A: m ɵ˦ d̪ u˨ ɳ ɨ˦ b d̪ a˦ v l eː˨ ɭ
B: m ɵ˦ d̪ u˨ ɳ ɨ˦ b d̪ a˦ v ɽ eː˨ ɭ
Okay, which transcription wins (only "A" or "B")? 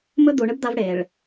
B